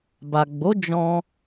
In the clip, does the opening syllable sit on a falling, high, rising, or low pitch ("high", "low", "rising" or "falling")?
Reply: low